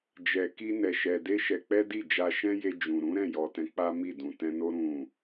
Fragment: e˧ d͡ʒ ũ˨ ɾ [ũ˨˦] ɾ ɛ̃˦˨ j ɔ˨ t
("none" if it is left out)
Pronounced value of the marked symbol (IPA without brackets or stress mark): ũ˨˦